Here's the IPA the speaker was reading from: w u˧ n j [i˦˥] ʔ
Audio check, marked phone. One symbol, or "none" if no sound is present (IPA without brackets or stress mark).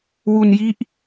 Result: i˦˥